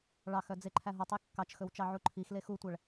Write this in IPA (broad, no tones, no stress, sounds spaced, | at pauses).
ɭ ɑ x œ d͡z e ǃʰ æ ɦ ɔ tˤ e kː ɑ t͡ʃ x ɵ w t͡ʃ ɑ ʕ u ǃʰ i x l e x u tʷ æ ɭ